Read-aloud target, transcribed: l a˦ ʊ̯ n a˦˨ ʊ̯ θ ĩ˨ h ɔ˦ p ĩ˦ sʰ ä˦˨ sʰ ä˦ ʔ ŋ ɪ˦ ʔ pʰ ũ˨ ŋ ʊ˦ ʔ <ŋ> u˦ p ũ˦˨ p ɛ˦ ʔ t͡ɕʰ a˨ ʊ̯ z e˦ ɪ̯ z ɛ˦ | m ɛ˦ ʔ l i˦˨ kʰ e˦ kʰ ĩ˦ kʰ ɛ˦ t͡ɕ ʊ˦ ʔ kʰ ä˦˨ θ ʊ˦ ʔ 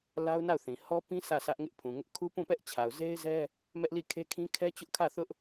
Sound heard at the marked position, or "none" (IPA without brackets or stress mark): kʰ